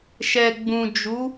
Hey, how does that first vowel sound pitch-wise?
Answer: low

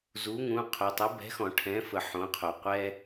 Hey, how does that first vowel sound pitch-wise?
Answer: rising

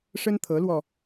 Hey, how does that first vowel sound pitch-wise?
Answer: high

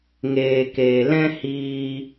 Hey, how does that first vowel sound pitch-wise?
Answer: low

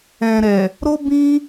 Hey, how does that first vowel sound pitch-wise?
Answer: low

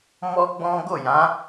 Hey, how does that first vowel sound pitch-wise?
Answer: high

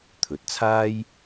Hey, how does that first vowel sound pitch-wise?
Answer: rising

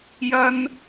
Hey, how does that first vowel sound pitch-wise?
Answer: high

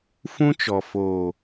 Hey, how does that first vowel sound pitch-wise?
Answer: high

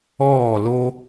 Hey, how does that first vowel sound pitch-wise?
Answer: falling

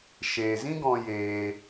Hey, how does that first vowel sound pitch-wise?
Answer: low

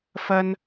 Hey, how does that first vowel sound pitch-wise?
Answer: high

